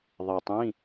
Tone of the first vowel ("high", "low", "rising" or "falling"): low